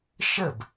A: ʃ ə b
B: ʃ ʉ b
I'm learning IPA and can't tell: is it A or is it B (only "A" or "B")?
A